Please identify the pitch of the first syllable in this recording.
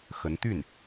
rising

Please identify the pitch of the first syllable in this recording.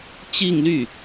falling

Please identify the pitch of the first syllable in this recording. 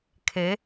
rising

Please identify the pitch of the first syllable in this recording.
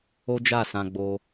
high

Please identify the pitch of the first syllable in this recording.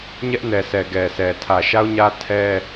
high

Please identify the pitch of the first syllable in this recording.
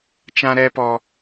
high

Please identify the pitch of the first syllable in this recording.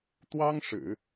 high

